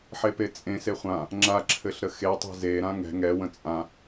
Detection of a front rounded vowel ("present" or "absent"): absent